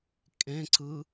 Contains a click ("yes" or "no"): yes